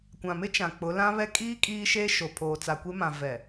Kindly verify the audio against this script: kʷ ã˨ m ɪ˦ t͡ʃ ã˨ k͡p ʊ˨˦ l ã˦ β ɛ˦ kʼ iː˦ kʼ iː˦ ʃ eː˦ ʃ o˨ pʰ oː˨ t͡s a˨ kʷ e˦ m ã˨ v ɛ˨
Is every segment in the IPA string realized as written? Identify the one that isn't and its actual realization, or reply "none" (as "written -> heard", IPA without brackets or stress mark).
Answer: none